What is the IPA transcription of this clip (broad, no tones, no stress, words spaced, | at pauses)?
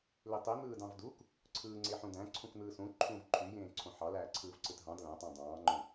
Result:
litˤi n̪ɯːdɑ̃vduk | ǀʰɯːŋ͡ǀeħũdæ̃ ǀʰũkn̪ɯːsũ ǃʰũːvǃʰyjẽː ǀʰõħɑ læːǀʰɯːvǀɯtɦɑ̃d læ̃tˤɑ̃ dˤɑ̃ːŋ͡ǃõ